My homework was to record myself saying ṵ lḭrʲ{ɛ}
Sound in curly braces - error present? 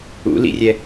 no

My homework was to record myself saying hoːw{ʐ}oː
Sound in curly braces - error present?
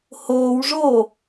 no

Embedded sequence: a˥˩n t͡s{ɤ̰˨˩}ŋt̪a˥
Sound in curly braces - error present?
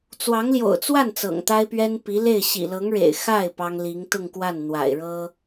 no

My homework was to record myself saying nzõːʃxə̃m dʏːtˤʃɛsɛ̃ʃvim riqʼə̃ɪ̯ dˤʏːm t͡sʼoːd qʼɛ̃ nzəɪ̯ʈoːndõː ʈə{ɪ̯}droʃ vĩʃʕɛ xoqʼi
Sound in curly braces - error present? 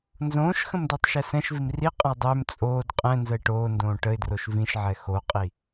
no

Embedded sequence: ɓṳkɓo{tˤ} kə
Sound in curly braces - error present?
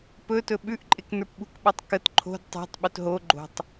no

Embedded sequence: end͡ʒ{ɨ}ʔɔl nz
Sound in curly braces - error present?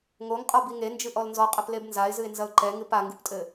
no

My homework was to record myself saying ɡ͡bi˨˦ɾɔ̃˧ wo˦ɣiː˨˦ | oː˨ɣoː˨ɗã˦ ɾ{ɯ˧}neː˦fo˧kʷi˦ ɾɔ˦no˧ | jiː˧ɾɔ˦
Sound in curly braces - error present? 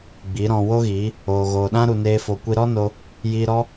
yes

